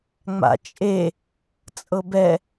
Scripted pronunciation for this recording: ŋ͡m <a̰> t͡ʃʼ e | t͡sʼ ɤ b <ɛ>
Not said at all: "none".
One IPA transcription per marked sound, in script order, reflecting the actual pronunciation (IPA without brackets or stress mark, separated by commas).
a̰, ɛ